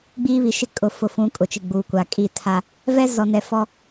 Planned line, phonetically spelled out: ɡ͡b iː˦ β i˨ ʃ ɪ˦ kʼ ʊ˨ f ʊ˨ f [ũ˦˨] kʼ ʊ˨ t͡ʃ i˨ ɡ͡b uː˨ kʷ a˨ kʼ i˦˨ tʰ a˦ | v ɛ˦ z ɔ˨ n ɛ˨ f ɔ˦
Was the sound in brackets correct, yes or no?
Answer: no